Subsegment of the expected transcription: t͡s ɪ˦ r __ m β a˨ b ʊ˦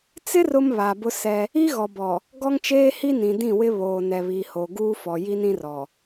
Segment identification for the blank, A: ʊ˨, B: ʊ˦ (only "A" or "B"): B